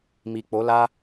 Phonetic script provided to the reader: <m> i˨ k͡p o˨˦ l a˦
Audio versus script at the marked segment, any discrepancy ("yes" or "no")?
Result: no